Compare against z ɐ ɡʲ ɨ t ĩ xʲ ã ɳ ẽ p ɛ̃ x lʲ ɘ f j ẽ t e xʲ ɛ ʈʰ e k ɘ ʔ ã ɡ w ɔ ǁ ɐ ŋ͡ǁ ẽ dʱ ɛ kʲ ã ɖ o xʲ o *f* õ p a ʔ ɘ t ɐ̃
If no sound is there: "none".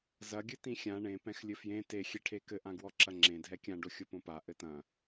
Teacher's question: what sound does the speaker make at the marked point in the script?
p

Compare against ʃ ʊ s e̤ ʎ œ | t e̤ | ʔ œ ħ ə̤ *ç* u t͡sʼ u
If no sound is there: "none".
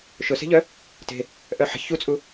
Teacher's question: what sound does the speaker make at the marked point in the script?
ç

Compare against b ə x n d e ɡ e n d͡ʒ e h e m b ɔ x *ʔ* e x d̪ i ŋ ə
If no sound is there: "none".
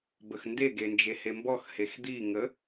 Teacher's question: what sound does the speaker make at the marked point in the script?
h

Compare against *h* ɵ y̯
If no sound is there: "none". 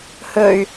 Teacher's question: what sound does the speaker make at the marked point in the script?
h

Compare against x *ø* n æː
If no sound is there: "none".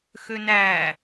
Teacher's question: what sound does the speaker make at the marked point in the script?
ø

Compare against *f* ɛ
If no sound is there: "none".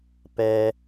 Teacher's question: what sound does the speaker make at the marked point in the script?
p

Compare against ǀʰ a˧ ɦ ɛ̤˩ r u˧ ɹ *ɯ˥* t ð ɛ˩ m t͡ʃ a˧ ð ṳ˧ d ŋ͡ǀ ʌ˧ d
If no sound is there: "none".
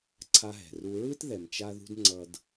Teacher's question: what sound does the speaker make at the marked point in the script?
ɯ˥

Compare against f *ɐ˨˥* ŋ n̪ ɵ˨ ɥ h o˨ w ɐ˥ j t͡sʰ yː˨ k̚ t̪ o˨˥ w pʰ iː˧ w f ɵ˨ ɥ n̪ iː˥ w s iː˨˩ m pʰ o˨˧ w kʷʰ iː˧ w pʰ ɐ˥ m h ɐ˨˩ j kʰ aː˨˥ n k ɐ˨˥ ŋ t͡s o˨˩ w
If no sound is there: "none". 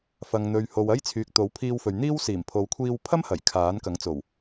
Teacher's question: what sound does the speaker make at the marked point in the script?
ɐ˨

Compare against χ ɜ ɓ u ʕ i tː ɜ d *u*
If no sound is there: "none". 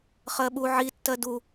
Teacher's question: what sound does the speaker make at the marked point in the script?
u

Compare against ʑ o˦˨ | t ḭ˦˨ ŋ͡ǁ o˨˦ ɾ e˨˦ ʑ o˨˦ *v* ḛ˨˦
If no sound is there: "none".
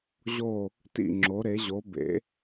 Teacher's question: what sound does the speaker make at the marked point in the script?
b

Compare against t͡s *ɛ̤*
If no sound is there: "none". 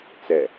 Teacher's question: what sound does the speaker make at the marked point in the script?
ɛ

